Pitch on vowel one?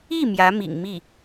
falling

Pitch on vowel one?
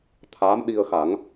rising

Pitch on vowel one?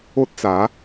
high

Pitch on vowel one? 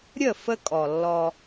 falling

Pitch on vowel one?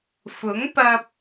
rising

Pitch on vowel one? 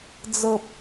low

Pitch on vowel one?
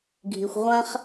low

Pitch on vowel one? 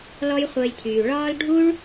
high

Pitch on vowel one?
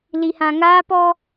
low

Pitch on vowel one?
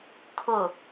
low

